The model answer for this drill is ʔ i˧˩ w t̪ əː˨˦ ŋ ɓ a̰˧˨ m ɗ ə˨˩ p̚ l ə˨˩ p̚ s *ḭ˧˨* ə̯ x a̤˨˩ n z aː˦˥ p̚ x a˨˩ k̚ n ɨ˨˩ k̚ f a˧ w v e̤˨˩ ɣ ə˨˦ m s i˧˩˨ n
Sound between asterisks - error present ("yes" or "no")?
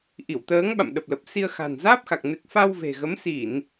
yes